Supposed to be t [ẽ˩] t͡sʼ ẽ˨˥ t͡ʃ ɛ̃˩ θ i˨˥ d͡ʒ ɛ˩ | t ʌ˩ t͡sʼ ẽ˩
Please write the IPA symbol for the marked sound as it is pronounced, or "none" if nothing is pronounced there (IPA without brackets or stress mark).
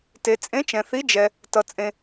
e˩